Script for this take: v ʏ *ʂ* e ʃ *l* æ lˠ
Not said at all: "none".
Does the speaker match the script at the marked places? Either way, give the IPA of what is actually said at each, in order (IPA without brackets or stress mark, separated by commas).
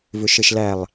ʃ, l